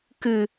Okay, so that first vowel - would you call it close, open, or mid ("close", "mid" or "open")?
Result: close